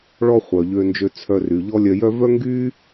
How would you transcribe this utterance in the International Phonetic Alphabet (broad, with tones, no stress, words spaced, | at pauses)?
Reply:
ɭɔ˥χʷœ˩ʎø˧nd͡ʒø˧ t͡sʰœ˧ry˩ʎɔ˥ lʲœ˧jœ˥ vœ˥ŋɡy˥